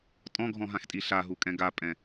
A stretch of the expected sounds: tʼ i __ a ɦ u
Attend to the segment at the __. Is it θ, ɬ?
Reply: ɬ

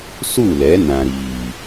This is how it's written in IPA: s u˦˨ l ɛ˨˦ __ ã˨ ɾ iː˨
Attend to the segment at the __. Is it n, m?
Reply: n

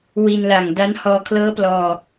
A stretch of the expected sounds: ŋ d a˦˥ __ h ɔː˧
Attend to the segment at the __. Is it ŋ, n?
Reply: n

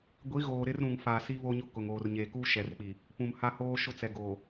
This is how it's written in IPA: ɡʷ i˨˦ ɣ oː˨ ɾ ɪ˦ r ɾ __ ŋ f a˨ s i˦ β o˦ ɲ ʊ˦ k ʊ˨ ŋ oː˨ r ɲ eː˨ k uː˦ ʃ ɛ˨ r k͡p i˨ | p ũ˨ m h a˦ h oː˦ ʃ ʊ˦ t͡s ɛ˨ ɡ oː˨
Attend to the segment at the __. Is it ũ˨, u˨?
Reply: ũ˨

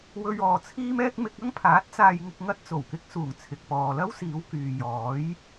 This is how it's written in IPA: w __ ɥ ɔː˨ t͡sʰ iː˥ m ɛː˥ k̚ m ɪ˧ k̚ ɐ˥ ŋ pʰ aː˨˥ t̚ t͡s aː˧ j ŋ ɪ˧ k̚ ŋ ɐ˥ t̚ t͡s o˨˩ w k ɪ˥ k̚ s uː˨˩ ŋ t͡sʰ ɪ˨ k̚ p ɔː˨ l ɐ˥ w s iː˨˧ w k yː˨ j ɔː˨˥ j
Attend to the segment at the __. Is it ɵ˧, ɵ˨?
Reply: ɵ˧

